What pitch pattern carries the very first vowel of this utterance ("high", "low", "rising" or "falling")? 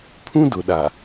high